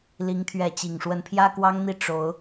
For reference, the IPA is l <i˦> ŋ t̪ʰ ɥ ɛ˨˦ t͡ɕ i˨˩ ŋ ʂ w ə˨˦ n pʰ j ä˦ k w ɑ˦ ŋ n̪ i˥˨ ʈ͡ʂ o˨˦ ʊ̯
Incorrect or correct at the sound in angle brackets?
incorrect: i˨˦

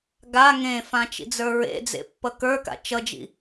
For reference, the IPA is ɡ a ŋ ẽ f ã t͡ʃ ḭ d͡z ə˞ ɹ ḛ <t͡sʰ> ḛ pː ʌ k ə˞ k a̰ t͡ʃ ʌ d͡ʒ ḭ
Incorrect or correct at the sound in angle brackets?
incorrect: d͡z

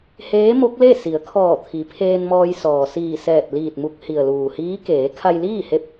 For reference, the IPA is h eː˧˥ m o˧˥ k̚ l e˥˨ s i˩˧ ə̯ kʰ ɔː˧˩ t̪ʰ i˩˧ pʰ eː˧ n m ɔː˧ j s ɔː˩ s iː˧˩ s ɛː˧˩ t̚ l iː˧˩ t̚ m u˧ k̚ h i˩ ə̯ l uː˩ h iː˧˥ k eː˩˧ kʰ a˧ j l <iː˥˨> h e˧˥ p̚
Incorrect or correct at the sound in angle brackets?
correct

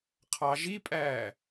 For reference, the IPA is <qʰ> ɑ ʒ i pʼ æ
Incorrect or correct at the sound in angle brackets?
correct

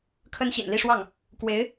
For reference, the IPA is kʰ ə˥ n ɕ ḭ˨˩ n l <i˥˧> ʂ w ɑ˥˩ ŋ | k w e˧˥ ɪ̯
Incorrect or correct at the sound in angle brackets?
correct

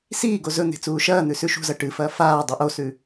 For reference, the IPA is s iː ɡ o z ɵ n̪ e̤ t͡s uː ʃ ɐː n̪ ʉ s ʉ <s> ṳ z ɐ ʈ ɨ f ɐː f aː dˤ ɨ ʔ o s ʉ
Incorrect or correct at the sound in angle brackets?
incorrect: ʃ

